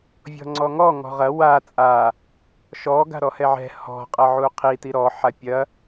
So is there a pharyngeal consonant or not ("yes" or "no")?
yes